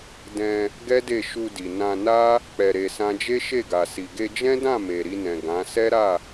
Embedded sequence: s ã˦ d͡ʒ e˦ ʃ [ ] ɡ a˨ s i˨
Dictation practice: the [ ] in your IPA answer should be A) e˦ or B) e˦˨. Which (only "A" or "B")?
B